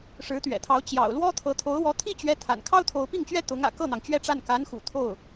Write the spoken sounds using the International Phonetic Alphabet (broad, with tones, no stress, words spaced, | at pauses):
ʂɻ̩˧˥t̪ɥɛ̰˨˩t̪ʰɑ˧˥ʊ̯ t͡ɕjɑ̰˨˩ʊ̯lwɔ˥t̪ʰɤ˧˥ t̪ʰo˧˥ʊ̯wɔ˧˥t̪ʰi˥˩t͡ɕɥɛ˧˥ t̪ʰa̰˨˩n kʰɑ˥ʊ̯t̪ʰo˧˥ʊ̯pi˥˩ŋt͡ɕɥɛ˥ t̪ʊ˧˥ŋä̰˨˩ kɤ˥˩n̪ɑ˩ŋ t͡ɕɥɛ˥˧ʈ͡ʂa˥˩n ka˧˥nxṵ˨˩ t̪ʰo˥˩ʊ̯